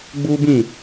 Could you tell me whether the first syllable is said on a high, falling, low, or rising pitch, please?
high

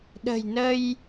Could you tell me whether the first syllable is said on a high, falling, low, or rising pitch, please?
low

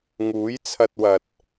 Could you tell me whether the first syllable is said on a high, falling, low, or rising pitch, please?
rising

